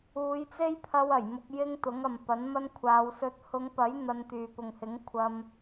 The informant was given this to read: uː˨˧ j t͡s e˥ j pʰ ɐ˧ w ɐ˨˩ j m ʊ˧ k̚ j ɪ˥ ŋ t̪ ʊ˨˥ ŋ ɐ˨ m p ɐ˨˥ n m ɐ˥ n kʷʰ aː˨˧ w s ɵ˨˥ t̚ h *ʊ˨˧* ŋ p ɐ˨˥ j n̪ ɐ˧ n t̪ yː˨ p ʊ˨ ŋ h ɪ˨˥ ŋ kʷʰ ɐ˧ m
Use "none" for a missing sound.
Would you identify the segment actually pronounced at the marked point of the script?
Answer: ʊ˨˧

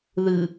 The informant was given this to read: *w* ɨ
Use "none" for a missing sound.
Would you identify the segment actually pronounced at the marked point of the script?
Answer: ð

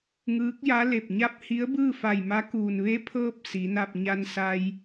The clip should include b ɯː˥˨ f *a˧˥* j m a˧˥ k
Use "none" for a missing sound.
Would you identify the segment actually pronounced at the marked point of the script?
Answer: a˧˩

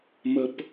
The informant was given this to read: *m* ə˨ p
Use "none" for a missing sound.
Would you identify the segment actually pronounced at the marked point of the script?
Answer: m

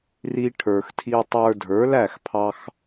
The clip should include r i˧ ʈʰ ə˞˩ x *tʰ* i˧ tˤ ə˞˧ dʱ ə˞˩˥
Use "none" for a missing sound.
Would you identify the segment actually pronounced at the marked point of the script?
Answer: tʰ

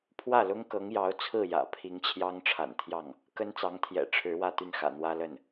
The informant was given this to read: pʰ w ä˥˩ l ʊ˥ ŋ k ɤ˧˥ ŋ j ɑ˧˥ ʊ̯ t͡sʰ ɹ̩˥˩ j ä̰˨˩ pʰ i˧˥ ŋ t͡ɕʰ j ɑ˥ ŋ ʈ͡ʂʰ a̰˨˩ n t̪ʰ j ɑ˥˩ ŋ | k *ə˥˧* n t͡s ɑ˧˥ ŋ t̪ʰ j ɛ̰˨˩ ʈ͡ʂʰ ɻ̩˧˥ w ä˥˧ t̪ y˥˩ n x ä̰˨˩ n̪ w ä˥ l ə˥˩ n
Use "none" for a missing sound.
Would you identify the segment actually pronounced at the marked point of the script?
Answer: ə˥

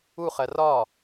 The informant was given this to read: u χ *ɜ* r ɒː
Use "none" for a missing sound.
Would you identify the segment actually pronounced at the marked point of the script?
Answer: ɜ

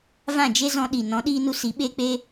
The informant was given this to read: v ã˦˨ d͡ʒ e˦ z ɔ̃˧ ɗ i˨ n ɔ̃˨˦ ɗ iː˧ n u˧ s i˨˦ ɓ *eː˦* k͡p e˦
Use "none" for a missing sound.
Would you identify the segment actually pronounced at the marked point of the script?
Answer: eː˦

